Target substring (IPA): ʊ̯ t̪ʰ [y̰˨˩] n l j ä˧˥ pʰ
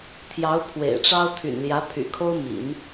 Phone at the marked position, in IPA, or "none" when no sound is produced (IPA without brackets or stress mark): y̰˨˩